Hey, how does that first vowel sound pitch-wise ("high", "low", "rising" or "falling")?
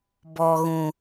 low